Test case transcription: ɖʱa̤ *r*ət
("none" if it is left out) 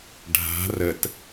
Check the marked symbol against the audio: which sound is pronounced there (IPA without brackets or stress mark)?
r